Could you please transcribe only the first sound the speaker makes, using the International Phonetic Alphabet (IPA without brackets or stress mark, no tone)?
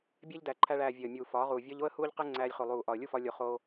bʲ